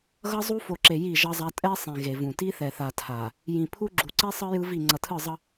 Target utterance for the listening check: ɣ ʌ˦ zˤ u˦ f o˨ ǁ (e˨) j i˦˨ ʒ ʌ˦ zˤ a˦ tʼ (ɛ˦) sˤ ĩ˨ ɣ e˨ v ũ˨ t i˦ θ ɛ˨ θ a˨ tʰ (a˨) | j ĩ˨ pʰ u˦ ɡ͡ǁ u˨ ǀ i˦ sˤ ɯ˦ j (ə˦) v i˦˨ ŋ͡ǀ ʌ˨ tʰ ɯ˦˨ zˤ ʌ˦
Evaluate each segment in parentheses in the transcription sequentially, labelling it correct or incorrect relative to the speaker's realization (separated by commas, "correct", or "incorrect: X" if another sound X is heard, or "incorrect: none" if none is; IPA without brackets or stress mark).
correct, correct, correct, incorrect: ɯ˦